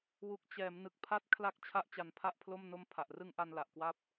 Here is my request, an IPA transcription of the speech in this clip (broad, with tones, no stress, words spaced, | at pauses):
wu˨˩k̚t͡ɕɛː˩˦m nɯ˨˩k̚pʰa˦˥t̚ kʰla˦˥k̚ t͡ɕʰa˥˩ʔt͡ɕa˧npʰa˥˩ʔpʰlo˥˩m no˦˥mpʰa˨˩ʔrɯ˧ŋ ʔa˧nla˨˩ʔkwa˦˥p̚